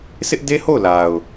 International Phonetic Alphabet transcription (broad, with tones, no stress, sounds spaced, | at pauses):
sʰ ɪ˦ ʔ d e˦ h o˦˨ ʊ̯ l a˨ ʊ̯